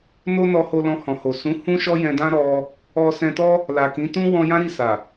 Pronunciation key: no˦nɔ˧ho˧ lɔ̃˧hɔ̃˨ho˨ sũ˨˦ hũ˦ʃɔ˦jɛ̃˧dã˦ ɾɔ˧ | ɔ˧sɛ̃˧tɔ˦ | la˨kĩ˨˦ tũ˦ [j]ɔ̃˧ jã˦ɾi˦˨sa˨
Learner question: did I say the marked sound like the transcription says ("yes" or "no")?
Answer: no